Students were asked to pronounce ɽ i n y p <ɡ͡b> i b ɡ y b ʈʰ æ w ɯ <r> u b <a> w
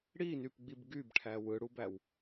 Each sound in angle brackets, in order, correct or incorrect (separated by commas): correct, incorrect, incorrect